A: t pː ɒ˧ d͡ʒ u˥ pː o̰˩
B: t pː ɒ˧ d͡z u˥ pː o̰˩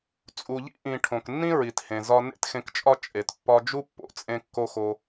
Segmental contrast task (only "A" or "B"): A